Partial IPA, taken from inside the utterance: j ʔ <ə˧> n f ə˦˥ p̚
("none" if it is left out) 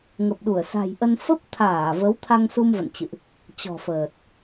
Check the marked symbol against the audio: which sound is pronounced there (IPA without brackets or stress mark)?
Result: ə˧